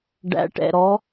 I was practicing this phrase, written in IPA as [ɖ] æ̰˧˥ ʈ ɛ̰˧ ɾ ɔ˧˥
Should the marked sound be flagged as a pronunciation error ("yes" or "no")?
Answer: no